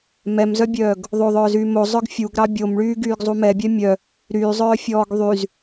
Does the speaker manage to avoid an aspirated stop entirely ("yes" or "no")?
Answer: yes